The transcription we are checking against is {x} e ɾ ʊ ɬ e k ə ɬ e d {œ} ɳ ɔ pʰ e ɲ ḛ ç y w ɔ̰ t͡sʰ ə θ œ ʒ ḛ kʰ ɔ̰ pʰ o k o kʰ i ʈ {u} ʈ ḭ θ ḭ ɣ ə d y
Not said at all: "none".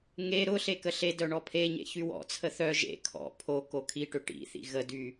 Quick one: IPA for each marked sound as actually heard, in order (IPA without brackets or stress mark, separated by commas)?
ŋ, œ, ʏ